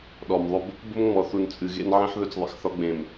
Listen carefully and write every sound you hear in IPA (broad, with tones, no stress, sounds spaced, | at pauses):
ɗ ɔ˨ m ðˤ ʊ˦ b | b ʊ˦ m ŋ͡m ɔ˨ θ u˨ n t͡sʼ ɨ˨ ɣ ḛ˦ n ʕ ĩ˦ ħ ð ɵ˦ t͡s ðˤ ḛ˨ x θ ɒ˦ ɡ͡b ẽ˨ m